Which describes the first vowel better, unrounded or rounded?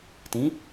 unrounded